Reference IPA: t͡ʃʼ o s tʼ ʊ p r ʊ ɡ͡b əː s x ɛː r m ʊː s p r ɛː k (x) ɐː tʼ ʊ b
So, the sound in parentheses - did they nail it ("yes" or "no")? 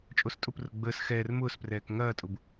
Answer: no